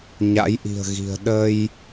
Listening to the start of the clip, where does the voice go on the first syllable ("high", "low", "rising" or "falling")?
rising